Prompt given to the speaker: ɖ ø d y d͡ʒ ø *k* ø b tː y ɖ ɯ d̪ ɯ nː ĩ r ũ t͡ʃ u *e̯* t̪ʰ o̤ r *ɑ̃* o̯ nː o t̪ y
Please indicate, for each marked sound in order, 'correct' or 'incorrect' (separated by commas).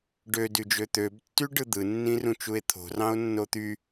incorrect, correct, correct